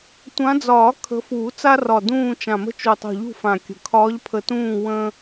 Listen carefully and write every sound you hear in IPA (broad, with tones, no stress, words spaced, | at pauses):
tʷã˨˦d͡zɒː˨˩˦ kʰə̤˨˦fuː˨˩˦t͡sa˦ rɒ˨˩ dũː˦˨ t͡ʃã˨˩mə̤˦˨ t͡ʃu˨˩tˤṳ˨˩ʎṳ˦˨ fã˨˩kʲə̤˨˩ kʰɒː˨˦ʎpʰə˨˩tũː˦˨ wə̃˦